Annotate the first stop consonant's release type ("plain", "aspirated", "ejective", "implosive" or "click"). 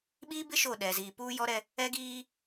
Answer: implosive